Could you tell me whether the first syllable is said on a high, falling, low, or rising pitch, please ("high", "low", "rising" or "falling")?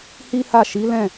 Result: high